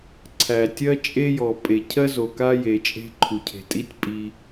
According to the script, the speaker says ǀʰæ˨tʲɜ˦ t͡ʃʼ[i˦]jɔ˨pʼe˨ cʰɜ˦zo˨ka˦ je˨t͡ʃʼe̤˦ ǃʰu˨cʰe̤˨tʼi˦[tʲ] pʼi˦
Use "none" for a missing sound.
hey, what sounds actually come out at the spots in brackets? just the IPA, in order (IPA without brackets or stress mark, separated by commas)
e˦, tʲ